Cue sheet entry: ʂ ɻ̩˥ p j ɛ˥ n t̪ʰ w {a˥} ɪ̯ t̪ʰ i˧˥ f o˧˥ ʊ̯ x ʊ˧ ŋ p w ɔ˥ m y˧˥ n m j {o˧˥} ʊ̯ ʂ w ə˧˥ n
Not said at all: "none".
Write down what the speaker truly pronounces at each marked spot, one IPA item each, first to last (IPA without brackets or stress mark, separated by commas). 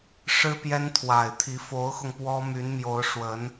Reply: a˨˩, o˧˥